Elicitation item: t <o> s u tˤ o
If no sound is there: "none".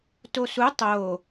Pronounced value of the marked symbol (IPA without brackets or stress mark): o